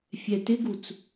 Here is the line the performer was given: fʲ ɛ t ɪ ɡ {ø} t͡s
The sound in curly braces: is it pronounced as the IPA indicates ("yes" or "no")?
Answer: no